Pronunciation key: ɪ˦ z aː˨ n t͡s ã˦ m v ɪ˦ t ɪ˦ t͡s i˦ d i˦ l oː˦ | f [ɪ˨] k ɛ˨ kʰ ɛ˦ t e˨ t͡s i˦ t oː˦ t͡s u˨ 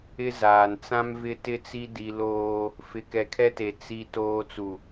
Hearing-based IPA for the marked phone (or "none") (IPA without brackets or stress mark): ɪ˨